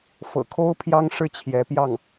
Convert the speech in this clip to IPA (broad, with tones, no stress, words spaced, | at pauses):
fɤ̰˨˩kʰo˥ʊ̯ pʰjɑ˥ŋʂɻ̩˥˩ t͡ɕʰjɛ˧˥pjɑ˥˩ŋ